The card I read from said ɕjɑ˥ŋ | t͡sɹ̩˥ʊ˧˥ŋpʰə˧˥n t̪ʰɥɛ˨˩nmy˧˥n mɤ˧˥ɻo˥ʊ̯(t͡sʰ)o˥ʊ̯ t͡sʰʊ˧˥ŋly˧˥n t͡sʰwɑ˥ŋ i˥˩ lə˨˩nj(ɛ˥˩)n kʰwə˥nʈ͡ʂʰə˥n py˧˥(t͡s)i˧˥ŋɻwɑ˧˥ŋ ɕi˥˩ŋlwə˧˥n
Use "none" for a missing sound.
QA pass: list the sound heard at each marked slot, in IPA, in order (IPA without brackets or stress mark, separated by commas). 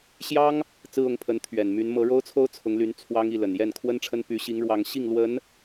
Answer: t͡sʰ, ɛ˥˩, ɕ